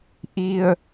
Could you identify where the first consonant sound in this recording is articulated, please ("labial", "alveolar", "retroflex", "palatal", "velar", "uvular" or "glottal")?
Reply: glottal